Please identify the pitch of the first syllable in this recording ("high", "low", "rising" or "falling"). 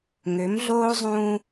rising